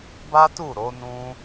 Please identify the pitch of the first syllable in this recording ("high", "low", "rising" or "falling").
high